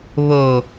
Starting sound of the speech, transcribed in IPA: β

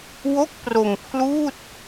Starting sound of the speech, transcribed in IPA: w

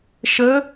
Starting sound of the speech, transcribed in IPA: ʃ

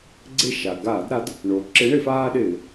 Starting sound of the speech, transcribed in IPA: ɡ͡ǀ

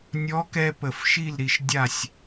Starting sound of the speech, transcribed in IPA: nʲ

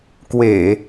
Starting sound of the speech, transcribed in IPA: k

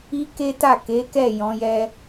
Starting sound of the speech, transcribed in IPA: i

